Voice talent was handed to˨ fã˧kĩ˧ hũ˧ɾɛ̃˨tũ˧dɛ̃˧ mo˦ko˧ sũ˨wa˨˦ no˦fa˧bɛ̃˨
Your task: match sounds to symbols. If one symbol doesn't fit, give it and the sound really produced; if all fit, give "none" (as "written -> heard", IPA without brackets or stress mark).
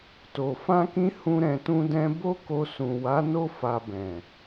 m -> b